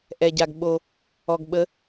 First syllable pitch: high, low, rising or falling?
low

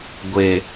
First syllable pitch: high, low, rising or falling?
low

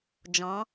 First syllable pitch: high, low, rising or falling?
rising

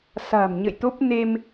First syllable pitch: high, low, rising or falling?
low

